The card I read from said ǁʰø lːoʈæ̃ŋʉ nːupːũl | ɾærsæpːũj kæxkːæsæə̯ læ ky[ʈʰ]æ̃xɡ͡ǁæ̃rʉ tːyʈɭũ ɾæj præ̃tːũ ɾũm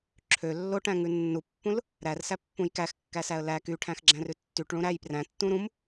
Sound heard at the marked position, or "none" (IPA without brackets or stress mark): ʈʰ